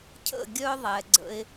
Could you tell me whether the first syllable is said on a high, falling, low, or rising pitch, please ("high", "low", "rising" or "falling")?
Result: falling